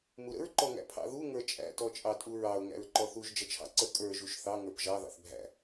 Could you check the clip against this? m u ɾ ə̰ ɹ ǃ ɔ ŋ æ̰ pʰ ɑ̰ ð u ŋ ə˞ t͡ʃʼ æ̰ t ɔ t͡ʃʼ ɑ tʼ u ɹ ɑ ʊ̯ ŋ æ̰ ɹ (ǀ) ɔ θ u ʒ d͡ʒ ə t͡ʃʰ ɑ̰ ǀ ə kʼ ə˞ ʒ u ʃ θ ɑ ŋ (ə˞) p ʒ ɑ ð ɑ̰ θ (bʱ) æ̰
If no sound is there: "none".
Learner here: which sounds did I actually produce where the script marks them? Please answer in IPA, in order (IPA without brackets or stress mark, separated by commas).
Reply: ǃ, ə˞, bʱ